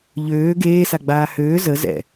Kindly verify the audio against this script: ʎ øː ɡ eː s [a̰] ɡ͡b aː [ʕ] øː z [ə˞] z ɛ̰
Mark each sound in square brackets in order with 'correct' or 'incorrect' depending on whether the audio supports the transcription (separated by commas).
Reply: incorrect, incorrect, incorrect